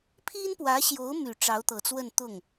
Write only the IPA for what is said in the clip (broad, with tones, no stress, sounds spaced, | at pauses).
pʰ i˥ n p w ä˧˥ ɕ j o˧˥ ʊ̯ m y˨˩ ʈ͡ʂ ɑ˧˥ ʊ̯ t̪ ɤ˨˩ t͡s w ə˥˧ n t̪ ʊ˥˩ ŋ